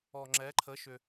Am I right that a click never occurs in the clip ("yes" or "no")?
no